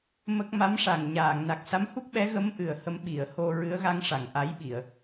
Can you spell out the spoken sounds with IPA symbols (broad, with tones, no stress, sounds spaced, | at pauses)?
m ə˦˥ k̚ m a˧˥ m ʂ a˨˩ ŋ ɲ aː˨˩˨ ŋ n a˨˩ k̚ s a˧˥ m h u˦˥ k̚ ɓ ɛ˧˥ ɣ ə˧˥ m ʔ ɨ˨˩ ə̯ h ə˧ m ɓ i˨˩˨ ə̯ h o˧ ɹ ɨ˧˥ ə̯ ɣ a˧˥ ŋ ʂ a˨˩ ŋ ʔ a˧˥ j ɓ i˨˩˨ ə̯